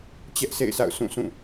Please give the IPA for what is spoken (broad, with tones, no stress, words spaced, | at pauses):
t͡ɕɛ˦ʔsʰḛ˦˨ɪ̯sa̰˦˨ʊ̯ sũ˦˨sʰũ˦˨